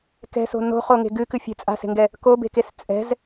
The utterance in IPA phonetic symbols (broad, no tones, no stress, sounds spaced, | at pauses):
k ɛ̤ s o̤ n o̤ χ o ŋ e̤ ɡ ɨ k ɨ fʲ e̤ t͡sʼ a̤ s e̤ ŋ ɡ ɛ | k o b e̤ k e s t͡sʼ ɛ̤ z